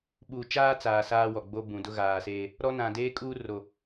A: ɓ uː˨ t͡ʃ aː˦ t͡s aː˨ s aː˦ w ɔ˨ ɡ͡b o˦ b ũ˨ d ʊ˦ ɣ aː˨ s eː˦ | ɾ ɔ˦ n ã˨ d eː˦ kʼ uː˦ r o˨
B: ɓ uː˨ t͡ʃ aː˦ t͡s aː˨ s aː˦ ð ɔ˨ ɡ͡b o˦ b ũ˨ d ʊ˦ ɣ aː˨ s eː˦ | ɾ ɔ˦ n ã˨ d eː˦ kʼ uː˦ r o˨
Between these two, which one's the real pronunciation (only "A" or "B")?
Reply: A